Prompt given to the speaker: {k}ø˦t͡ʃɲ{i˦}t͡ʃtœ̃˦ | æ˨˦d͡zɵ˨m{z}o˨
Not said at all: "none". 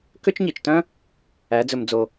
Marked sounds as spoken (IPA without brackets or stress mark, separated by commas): k, i˨, d͡z